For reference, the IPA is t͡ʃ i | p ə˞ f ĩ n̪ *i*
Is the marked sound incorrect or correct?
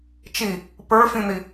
correct